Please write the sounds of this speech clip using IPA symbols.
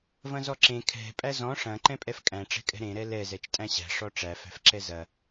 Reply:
v ɐ̃ z ɔ ǁ ẽ kʰ ɛ̤ pʼ æ z ɔ̃ ʂ ɐ̃ ǃ ɛ̃ pʼ ɛ f kʼ æ̃ ʈ͡ʂ ɛ̤ kʼ ɛ̤ ɾ ẽ ɾ ɛ l ɛ z ɛ t͡ʃ tʼ æ̃ ɕ æ̤ ʂ ɔ ʈ͡ʂ æ f æ̤ f ǁ ɛ z ɐ

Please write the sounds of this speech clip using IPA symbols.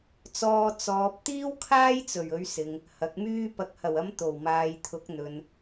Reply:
t͡s ɔː˧ t͡s ɔː˨ p̚ t̪ iː˥ w kʰ aː˥ j t͡s ɵ˨˩ ɥ ɵ˨˧ ɥ s ɪ˨ ŋ | h ɐ˨˥ k̚ m yː˥ p ɐ˨ k̚ h ɐ˨˩ w ɐ˨˧ m t̪ o˨˩ w m aː˨ j t̪ʰ ʊ˨˥ k̚ n̪ ɵ˨ n

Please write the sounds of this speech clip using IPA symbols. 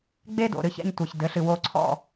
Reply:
ɡ͡b e˥ d o̰˩ ɾ ɨ˧ ç ɛ̰˥˨ ɲ tʷ ɘ˩ ç d ɘ˩˧ ɬ ɨ˩ w o˧ ǀʰ ɔ̰˥˨

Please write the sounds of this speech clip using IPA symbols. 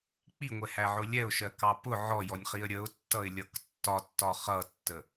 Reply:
k͡p i ŋʷ ɛ h æ ʕ ʊ lʲ ɛ ʊ̯ ʃ ɜ k ɑ p ʊ ʕ ɔ j ɔ nʲ χ i ə̯ ɾʲ ə ʊ̯ tː ʌ ɪ̯ lʲ ʌ k tː ɒ tː ɒ χ ʌ tː ə

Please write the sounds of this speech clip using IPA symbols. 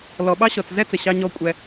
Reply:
l ɔ˨ ɓ ɑ˦ ɕ ɔ˨ t͡s z ɛ˦ t͡s ə˨ ɕ ɑ˧ ɲ ɔ˧ kʷʼ ɛ˧

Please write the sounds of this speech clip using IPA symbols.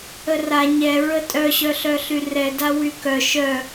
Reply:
ə r a ɲ ɛ ɹ ə tʼ œ ɕ œ ɬ œ ɬ y r ɛ d a w y k œ ʃ œ

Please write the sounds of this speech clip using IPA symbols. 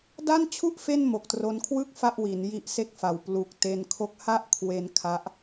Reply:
d a˥˩ n t͡ɕʰ u˥˩ ʔ f e˥˩ n m o˨˩ k̚ t r o˧ n kʰ w ɯ˥˩ k̚ f a˥˩ ʔ w i˩˦ n j i˦˥ ʔ s e˥˩ k̚ f a˨˩ w p l u˨˩ k̚ t e˧ n kʰ o˦˥ k̚ h a˥˩ ʔ kʰ w e˧ n kʰ a˦˥ ʔ

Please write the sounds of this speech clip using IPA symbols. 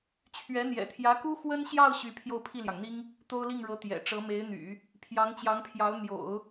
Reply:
t͡ɕʰ ɥ ɛ˧˥ n̪ j ɛ̰˨˩ t̪ʰ j ä˧˥ k u˥ x w ə˥ n ɕ j ɑ˥˧ ʊ̯ ɕ y˥˧ pʰ j o˥˧ ʊ̯ pʰ i˥˩ l j ɑ˩ ŋ n̪ i˥ ŋ | t̪ o˥ ʊ̯ l i˥˩ ŋ ɻ ɤ˧˥ t̪ j ɛ̰˨˩ ʈ͡ʂ ɤ˧˥ m e˧˥ ɪ̯ n̪ y̰˨˩˦ | pʰ j ɑ˧˥ ŋ t͡ɕ j ɑ˧˥ ŋ pʰ j ɑ˧˥ ʊ̯ n̪ j o̰˨˩˦ ʊ̯

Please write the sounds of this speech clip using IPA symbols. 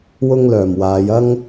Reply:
w ʊ˥ ŋ l œː˨˩ m w aː˨˧ j ɐ˥ ŋ

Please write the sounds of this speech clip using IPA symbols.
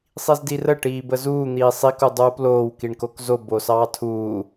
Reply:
sˤ i z d i r ə ʈ iː b ə z uː n̪ iː sˤ i k u dˤ uː p l oː w k i ɳ k o k z o b o s ɑː tʰ uː

